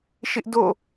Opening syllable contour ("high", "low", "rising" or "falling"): high